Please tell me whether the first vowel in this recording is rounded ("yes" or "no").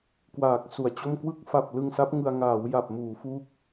no